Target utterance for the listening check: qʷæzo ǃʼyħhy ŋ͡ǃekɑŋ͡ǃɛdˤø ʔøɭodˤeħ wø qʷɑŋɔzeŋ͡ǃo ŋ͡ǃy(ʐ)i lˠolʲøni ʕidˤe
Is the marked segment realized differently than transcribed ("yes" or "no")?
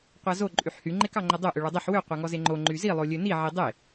yes